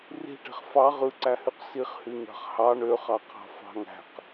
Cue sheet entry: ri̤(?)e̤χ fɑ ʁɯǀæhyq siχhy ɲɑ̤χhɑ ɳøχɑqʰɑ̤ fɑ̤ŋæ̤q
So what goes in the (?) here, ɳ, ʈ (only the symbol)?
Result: ʈ